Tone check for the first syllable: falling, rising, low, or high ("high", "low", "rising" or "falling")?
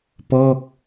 falling